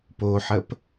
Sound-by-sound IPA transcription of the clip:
poħəp

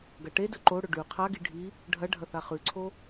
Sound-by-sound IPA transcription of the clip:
ɡɐʈedɵ ǃoɽɵ ɖʉ qʰaɡi ɖʱi | ɖʱɐ ɖʱɐθaχʉǀʰo

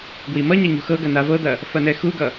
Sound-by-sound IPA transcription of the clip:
ɡwimʌɲa ɲṳxɤɡɐ navɤd̪ɐ | fɐnɛxuɡʌ

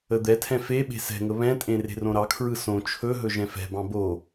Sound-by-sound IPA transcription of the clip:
əd̪ɛtʰɛ̃ feɓe̤ sɛ̤ŋə βɛ̃tʼẽ re̤rõɾɑkʰɹɯ sõ t͡ʃʰɵɦɵ ʒɛ̃fɛ̤bɑ̃ bo

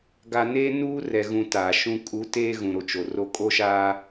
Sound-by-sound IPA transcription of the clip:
ɡa˨ne˦ nuː˦rɛ˨ɣũ˨ taː˨ʃũ˦ kʼu˨˦teː˦ ɣũ˨ɾo˨ t͡ʃo˨ro˦ kʼo˦ʃaː˦

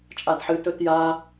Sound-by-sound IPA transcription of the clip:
t͡ʃʼadħɨ tɵtja

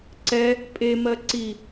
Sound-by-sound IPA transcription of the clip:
ǀɛ | pʼemɜ ǀi

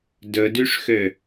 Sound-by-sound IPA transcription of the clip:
dɵdyʂxø

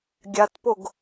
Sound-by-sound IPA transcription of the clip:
ɡʲatpoɡ

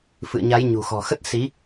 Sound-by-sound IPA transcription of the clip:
fɨ̰˧˨ə̯ɲa˨˦j ɲṳ˨˩xɔ̤˨˩xə˦˥t̚ si˨˦

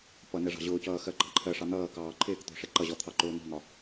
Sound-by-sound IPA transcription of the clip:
pʌ nɛʐɑ̤ʑʊːcʌː xɜɡ͡ǃɑǃʰɜʂɑ n̪ʌːkɑː ǃʰɪːkt̪ɔ̤ ʂɛǃʌʑɔ t̪ʰɑǃʊːnɔ̤ŋɒ

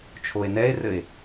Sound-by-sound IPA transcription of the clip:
t͡ʃʰoe̯nɛe̯rɘe̯

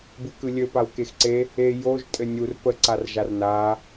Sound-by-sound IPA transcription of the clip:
bɯkɯlʲɘ pawkexǀe | e joʒ tʼɘnʲur pə ǀarʒarna

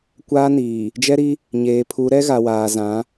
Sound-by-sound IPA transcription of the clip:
kʷaː˦niː˨ | d͡ʒɛ˦ɾi˦ | ɲeː˨pʰu˨˦ ɾɛ˦ɣa˨waː˨zã˨˦

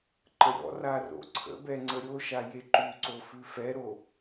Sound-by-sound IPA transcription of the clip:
ǃəɾʲɔ̰ra ro̰ǀʰə̰bɛ ŋ͡ǀəɾʲoʃa jeǃʉǀo fʉfɛɾo

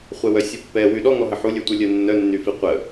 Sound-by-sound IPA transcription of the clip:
χʷɛwœsʲupːɛ wyɗɔŋɔɦə ħulʲœtʷœ lʲœnːœnːyfi qʷə

